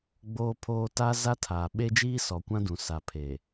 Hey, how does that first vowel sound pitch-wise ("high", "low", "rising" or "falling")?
high